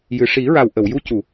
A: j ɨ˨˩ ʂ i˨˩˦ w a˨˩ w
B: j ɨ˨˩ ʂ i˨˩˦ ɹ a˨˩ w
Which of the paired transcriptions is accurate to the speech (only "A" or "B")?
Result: B